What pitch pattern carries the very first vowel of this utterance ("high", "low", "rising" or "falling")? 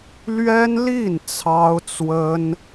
high